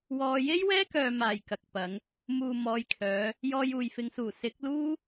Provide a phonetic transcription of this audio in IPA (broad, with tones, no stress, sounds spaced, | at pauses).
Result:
w ɔː˧ j e˥ j w ɛː˥ k œː˨ m aː˨˩ j k ɐ˨ k̚ p ɐ˨˧ ŋ | m uː˨ m ɔː˨˧ j kʰ œː˨˧ | j ɔː˧ j uː˨ j f ɪ˨˧ ŋ s uː˨˩ s ɪ˨˥ k̚ l uː˥